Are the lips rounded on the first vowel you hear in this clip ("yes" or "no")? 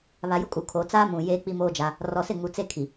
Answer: no